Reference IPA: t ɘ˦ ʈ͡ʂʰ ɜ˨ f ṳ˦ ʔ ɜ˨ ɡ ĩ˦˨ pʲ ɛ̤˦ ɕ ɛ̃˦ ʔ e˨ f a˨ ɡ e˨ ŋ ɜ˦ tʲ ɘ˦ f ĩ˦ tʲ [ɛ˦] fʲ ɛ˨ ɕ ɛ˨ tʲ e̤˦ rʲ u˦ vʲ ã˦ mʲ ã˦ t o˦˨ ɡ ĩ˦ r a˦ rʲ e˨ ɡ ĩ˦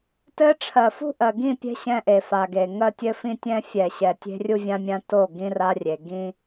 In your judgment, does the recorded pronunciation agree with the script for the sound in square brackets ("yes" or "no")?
no